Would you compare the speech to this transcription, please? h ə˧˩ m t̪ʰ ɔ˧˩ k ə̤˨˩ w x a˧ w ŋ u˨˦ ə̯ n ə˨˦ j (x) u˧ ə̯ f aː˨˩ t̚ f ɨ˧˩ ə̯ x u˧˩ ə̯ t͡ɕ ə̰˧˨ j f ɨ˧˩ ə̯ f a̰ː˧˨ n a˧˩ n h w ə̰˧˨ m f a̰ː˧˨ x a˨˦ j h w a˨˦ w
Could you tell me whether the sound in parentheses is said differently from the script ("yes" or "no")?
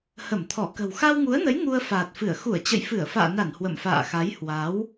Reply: yes